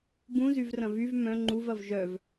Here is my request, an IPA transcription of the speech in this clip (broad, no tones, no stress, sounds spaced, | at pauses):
b ũ z y v r ɐ̃ v y v m œ̃ ŋ͡ǃ u v ɐ v ʒ œ v